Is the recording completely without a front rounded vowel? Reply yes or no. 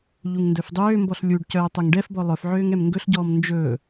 no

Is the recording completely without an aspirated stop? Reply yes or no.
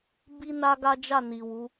yes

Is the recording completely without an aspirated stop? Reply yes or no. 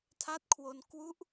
no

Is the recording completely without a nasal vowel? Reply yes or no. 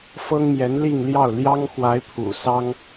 yes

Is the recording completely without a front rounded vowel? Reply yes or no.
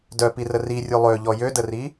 no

